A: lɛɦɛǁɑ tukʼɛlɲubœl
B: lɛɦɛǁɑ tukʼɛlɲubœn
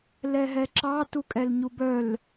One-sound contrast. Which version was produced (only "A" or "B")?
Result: A